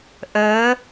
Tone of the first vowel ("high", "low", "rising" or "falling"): rising